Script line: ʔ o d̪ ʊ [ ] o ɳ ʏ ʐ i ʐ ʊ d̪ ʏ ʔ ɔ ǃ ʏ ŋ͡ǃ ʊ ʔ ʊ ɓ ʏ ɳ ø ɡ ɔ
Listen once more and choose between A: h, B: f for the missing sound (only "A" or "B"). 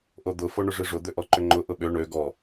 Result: B